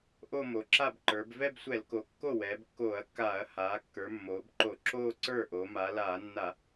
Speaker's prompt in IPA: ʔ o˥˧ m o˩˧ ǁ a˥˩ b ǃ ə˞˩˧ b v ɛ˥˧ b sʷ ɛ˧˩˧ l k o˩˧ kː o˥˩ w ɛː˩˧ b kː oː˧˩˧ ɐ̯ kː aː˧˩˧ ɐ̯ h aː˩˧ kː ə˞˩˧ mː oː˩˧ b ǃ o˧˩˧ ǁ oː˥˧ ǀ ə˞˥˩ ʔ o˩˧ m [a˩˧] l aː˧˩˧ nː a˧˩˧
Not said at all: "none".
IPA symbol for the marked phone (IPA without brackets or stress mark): a˩˧